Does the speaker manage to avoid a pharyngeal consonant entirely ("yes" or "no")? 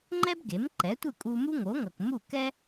yes